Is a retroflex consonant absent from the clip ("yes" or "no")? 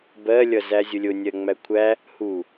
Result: yes